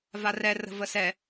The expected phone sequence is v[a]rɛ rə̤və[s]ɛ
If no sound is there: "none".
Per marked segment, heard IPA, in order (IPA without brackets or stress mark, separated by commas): a, s